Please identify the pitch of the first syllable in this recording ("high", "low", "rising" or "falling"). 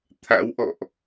rising